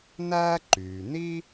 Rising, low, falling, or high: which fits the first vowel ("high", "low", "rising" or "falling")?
high